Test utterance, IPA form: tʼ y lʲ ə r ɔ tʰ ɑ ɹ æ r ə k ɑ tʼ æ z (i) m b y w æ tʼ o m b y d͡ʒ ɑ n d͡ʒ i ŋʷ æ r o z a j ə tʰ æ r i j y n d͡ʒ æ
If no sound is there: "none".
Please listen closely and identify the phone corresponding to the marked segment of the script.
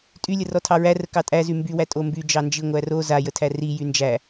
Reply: y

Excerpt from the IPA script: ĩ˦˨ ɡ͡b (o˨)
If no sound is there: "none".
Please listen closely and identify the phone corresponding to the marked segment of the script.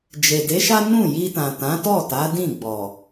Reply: ɔ˨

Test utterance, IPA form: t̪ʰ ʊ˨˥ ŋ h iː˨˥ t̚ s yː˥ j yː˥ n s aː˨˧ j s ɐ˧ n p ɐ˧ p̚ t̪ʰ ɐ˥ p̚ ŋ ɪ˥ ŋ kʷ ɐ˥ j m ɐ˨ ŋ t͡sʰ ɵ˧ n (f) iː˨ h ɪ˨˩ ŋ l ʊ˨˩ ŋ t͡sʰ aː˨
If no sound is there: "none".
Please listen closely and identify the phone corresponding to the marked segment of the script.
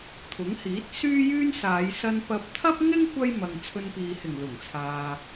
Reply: p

